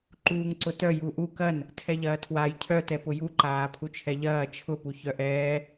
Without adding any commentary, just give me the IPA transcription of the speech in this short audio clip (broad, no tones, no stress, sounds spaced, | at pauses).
ǃ uː ŋ ǀ ʊ t œ j u ʔ u k ɐ n | tʰ ɛ ʎ ɐː tʰ w a j cʰ œ t ɛ p ʊ j u ǃ aː pʰ u t͡ʃʰ ɛ ʎ ɐː t͡ʃʰ ʊ p u ç œ ʔ ɛː